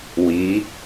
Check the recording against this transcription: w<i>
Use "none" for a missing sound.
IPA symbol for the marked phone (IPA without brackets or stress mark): i